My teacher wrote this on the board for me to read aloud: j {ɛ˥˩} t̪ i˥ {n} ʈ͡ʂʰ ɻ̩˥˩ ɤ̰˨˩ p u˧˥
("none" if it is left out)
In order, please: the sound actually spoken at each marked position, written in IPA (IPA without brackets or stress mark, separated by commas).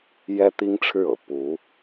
ɛ˥, ŋ